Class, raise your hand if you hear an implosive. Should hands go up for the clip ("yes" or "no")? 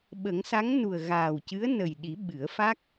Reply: yes